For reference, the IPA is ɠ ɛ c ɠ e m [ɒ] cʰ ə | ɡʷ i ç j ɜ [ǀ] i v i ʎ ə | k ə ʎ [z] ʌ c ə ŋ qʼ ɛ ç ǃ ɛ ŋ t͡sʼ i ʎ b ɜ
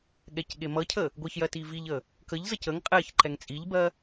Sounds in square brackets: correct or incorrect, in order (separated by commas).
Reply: incorrect, incorrect, correct